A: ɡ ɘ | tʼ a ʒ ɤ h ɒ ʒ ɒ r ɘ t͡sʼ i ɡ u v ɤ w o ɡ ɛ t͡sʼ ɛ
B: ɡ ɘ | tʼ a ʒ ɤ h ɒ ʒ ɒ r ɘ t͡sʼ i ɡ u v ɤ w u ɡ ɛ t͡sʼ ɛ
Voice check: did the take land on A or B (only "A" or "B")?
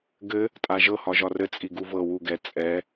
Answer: B